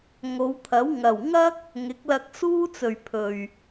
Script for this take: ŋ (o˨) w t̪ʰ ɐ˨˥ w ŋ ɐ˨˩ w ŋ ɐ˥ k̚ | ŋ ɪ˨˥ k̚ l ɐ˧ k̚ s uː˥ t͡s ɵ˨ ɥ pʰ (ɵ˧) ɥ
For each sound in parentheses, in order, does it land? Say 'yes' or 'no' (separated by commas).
no, no